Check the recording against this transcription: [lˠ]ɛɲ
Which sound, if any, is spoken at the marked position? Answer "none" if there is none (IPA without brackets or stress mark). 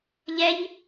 ʎ